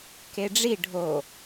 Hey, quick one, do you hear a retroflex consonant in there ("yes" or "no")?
yes